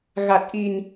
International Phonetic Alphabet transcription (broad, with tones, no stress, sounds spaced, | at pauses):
ɣ a˨˩ t̚ ʔ i˨˩ n